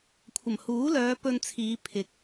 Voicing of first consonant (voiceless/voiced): voiceless